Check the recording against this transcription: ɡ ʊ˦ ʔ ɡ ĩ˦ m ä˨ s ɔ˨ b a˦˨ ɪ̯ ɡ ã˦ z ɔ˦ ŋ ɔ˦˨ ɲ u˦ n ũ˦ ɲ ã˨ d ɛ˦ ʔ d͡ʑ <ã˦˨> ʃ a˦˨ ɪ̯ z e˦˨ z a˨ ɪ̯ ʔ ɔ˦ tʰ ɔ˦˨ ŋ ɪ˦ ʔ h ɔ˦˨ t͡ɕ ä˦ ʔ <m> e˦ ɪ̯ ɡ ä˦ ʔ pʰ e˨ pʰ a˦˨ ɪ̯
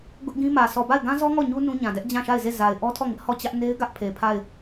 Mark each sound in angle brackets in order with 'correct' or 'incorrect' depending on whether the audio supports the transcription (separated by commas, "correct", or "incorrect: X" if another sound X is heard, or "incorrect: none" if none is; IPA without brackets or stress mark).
correct, incorrect: n